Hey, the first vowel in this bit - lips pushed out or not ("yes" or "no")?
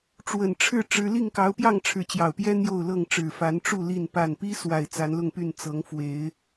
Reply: no